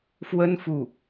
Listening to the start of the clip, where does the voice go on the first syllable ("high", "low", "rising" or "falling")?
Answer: high